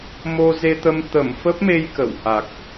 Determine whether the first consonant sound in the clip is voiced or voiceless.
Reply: voiced